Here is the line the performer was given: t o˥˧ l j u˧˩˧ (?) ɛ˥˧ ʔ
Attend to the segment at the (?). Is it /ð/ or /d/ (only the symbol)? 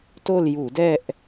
d